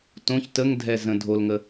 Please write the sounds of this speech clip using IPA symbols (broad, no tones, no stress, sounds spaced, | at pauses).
t õ ç t ə ŋ dʱ ɛ z ə̃ dʱ o l ŋ ə